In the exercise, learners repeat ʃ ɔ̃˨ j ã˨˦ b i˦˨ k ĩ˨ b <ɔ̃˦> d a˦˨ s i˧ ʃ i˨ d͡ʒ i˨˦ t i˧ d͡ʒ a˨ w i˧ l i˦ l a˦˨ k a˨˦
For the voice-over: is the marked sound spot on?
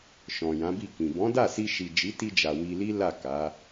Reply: no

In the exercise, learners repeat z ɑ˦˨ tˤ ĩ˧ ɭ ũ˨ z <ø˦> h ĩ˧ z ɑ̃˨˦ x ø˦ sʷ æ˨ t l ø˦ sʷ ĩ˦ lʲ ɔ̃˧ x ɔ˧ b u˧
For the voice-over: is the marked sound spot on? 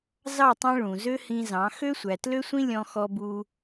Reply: yes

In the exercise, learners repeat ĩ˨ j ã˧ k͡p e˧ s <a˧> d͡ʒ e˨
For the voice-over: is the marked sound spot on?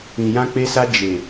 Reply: yes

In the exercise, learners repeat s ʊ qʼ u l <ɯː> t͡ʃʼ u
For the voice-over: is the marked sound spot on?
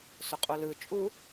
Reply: no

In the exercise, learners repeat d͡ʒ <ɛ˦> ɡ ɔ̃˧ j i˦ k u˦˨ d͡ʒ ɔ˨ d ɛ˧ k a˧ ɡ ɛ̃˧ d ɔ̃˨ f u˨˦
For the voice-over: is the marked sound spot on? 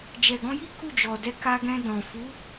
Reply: no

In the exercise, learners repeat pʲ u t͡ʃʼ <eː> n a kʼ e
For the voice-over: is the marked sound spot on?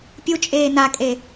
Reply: yes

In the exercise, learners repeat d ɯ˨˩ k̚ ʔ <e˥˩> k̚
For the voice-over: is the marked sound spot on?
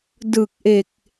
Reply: no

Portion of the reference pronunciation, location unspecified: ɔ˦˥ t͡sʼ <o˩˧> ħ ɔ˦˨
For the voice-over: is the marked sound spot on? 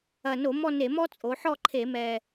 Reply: yes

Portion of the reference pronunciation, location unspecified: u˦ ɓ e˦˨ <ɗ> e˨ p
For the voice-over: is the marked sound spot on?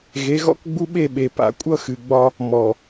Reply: no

